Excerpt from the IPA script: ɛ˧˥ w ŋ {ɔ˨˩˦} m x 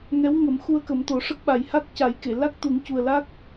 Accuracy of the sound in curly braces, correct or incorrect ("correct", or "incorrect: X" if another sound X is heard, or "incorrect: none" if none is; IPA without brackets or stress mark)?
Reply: incorrect: ə˨˩˦